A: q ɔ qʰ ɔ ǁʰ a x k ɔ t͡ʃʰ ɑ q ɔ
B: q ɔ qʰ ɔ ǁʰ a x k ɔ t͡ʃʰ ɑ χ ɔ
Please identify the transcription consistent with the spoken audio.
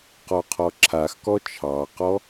A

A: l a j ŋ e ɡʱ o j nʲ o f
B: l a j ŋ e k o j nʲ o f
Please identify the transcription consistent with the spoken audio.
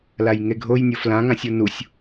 A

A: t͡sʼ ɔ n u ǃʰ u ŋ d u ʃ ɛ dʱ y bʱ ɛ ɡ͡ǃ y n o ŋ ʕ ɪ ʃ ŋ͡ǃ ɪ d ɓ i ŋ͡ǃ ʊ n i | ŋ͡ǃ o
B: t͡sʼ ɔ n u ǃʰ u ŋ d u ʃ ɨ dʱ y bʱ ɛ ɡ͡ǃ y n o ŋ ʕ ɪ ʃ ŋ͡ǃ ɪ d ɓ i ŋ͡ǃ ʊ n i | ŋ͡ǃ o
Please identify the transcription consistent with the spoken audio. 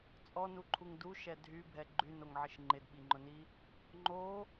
A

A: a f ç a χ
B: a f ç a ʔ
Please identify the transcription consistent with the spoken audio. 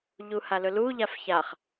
A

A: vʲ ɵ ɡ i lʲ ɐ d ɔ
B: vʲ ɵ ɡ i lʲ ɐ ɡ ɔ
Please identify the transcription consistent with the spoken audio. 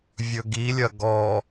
B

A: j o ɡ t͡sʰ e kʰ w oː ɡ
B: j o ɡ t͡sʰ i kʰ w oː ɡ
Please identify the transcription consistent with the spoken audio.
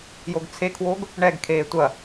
A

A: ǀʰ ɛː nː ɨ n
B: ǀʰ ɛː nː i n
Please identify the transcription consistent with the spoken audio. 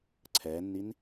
B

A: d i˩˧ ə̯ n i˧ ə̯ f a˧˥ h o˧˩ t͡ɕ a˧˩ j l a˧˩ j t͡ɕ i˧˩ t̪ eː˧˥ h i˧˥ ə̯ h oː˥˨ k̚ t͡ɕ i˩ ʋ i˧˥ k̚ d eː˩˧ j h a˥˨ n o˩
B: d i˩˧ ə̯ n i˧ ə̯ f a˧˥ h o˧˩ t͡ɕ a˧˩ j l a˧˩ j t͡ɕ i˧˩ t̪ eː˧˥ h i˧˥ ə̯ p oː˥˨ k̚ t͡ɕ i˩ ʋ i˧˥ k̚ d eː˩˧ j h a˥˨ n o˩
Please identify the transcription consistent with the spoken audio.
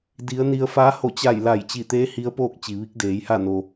B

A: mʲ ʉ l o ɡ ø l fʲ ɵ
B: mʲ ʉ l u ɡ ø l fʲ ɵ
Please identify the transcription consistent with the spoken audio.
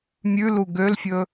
B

